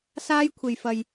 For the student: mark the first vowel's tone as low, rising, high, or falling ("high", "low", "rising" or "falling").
high